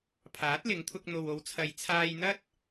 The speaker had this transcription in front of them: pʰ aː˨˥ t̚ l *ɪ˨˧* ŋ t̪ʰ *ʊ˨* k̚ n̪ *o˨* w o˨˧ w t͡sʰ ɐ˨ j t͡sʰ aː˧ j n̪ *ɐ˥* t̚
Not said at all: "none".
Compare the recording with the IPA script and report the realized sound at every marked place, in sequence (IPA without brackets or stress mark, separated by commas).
ɪ˨˧, ʊ˧, o˨, ɐ˥